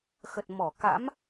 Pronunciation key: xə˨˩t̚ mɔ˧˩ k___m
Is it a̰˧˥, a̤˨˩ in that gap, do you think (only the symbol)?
a̰˧˥